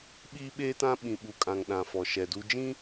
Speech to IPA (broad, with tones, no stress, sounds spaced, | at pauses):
ɓ iː˦ ɓ eː˦ t ã˦ ɓ ĩ˨ ɓ u˨ kʼ ã˨ ŋ ɗ ã˨ f ɔ˨ ʃ ɛ˨ d u˦ d͡ʒ ĩ˦